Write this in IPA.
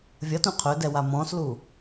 vʲ ʌ t ũ qʰ ɵ d ɛ w a m ɔ̃ s l u

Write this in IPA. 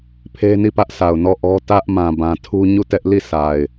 pʰ e˦ n i˦˨ p ä˦ ʔ s a˨ ʊ̯ n ɔ˦˨ ʔ ɔ˦ t ä˦ ʔ m ã˨ b ã˨ tʰ u˦ ɲ u˦˨ t ɛ˦ ʔ l i˦˨ sʰ a˨ ɪ̯

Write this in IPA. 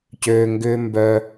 c øː˧ ŋ ɡ ʏː˦ m b œ˧

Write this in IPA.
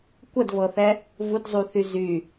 kʷ ə d v ɤ θ ɛ | v u d zˤ u θ y z y

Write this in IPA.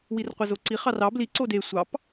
w i r qʷ e z o ǀ i χ ɑ r ɑ b l i ǀ o d e sʷ ɑ p

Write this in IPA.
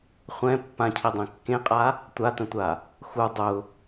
χʷ ɛ̃ pː ã cʰ i dˤ ẽ kː ẽ qʼ a | tʷ a t ə̃ tʷ a | x u dˤ ʊ

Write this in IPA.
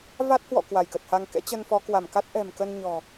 v a˦˥ t̚ h w ɔ̰˧˨ k w a˧˩ j k ə˨˩ t̚ h a˧ ŋ k ɛ̰˧˥ t͡ɕ ə˧ n f ɔ˨˦ k w a˧˩ m k a˦˥ t̚ ʔ ɛ̤˨˩ m k ə˧ n ɲ ɔ̤˨˩

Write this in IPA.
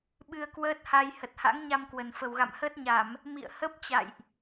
ɓ ɨ˧ ə̯ k w əː˦˥ t̚ h a˧ j h ə˨˩ t̚ h a̰˧˥ ŋ ɲ a˧ m k w ə˨˩ n f ə˨˩ w ɣ a̰˧˨ m h əː˦˥ t̚ ɲ a˧˩˨ m | m ḭ˧˨ ə̯ h ə˦˥ p̚ t͡ɕ a̰˧˨ j ʔ

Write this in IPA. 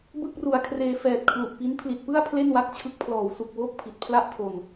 b ɯ˥˩ k̚ r u˨˩ a̯ kʰ r eː˧ f ɛː˨˩ t̚ kʰ l u˨˩ ʔ p i˦˥ n pʰ l i˨˩ t̚ p ɯ˥˩ a̯ pʰ l e˥˩ n w a˦˥ k̚ t͡ɕʰ ɯ˦˥ k̚ pʰ l ɔː˩˦ w s u˨˩ k̚ w oː˥˩ k̚ pʰ i˨˩ t̚ pʰ l a˥˩ ʔ tʰ o˨˩ n

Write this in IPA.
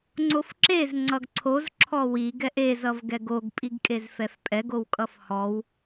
ŋ͡ǀ o f ǁ e z ŋ͡ǀ ʌ ɡ ǀʰ o z ǁʰ ɔ w i ɡ ɛ ʔ e z ʌ v ɡ ɛ ɡ o ɡ pʼ i ɡ kʼ e z f ɛ f pʼ ɛ ɡ o w kʼ ʌ f h ɔ w

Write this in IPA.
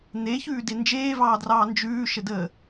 n̪ e ç ʉː d e n d͡ʒ eː v ɑː d r ɑː n d͡ʒ ʉː ʃ ə d əː

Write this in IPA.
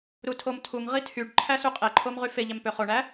ɾ u tʰ o m tʰ u ŋ ʁ i tʰ y ɖ ǃʰ æ s y qʼ e ǃʰ o m ʁ y f e ʎ æ m p ø χ o ɳ æ

